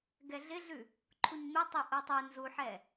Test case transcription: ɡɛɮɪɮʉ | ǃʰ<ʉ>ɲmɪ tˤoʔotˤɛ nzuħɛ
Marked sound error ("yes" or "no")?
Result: yes